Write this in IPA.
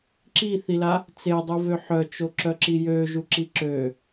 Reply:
ǁ i θ i l a | t͡s e dˤ u v ø ħ œ t͡ʃ o ǁ œ ǁ i j ø ʒ u ǁ i ǁ ø

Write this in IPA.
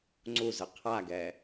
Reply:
ŋ͡ǀ u z ɯ qʰ a ɡ ɛ

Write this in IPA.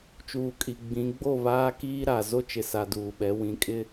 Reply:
t͡ʃ uː˨ kʼ i˨ ɡ͡b ĩ˨˦ ɡ͡b o˦˨ β aː˦ k iː˦ ɾ a˨ z o˦ t͡ʃ ɪ˨ s a˨ d uː˨ ɓ ɛ˨˦ w ĩ˨ kʼ ɪ˦

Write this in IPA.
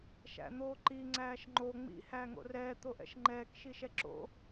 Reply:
ʃ æ̰ n̪ oː ǃ i ŋ͡ǀ æː ʃ ŋ͡ǃ o ŋ͡m ḭ h æː ŋ o̰ r ɛː t̪ o ʔ ɛ̰ ʃ ŋ͡ǃ ɛː k ʃ i ʃ ɛ ǁ o̰

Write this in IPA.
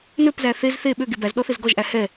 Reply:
n ø p z æ θ e z θ e ɓ ø ɡ e b æ z ɗ ɔ θ e z ɡ ɔ ʒ ʔ æ h ɛ

